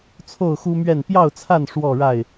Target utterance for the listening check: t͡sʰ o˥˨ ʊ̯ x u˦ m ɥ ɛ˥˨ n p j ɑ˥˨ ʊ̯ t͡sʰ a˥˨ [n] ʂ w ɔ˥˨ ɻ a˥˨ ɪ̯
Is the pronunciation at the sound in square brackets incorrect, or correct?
correct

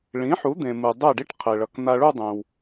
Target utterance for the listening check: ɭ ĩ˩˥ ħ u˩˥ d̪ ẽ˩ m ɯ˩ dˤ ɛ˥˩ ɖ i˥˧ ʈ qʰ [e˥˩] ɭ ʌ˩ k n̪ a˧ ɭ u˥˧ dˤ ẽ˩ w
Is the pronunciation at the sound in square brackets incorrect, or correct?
incorrect: e˩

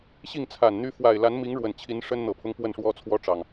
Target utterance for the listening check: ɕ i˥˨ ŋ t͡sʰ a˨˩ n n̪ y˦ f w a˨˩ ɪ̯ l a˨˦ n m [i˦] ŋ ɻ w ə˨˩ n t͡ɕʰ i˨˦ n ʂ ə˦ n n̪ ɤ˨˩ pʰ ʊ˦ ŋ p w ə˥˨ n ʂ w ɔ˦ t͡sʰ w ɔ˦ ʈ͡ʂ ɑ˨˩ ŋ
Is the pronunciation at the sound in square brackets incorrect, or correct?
incorrect: i˨˦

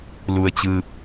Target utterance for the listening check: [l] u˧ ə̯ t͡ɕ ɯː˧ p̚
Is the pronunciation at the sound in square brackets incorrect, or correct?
correct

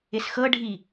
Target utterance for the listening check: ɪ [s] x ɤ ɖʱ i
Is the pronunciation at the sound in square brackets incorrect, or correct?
correct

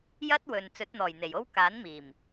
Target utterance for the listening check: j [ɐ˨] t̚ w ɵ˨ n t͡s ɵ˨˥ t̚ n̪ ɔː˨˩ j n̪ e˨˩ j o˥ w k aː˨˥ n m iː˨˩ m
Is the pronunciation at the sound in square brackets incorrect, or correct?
incorrect: ɐ˥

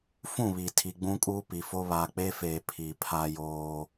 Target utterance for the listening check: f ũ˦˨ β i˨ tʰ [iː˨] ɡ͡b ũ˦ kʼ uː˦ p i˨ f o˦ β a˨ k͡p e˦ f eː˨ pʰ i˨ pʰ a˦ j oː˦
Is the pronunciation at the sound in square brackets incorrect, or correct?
incorrect: i˨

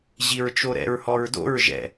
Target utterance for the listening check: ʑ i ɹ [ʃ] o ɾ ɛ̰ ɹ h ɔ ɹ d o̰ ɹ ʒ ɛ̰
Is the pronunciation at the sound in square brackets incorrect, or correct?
incorrect: t͡ʃ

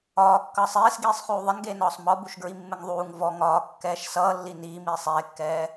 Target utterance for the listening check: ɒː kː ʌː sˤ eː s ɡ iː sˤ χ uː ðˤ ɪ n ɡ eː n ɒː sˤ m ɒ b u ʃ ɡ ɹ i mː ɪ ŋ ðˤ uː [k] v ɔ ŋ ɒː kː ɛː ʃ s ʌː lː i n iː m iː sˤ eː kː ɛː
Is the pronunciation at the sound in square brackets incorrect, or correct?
incorrect: ŋ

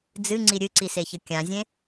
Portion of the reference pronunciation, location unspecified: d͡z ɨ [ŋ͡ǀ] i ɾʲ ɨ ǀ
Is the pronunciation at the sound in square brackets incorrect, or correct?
correct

